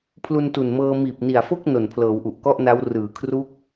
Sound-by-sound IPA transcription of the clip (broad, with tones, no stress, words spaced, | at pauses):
pʰlu˧ntu˨˩nmɤː˧ miː˨˩p̚ni˨˩a̯fo˥˩k̚ no˨˩npʰlɤː˩˦wʔu˨˩ʔ kɔ˥˩ʔna˦˥w rɯː˨˩ kʰru˦˥k̚